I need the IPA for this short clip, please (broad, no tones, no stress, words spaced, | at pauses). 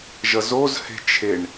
ʒʌzozhe̤ t͡ʃʰeɳ